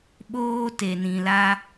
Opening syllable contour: high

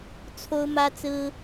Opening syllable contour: high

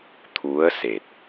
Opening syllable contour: rising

